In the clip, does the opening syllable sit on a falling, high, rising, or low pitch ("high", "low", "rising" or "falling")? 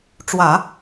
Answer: low